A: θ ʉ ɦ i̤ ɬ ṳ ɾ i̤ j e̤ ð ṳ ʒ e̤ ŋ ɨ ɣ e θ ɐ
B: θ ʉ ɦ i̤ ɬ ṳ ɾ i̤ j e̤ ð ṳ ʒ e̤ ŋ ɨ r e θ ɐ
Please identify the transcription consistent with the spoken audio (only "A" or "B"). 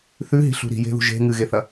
A